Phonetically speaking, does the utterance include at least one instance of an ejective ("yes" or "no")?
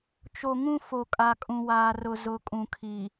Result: yes